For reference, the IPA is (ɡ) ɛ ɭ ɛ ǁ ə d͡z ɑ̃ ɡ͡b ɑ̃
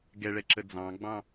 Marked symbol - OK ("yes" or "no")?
yes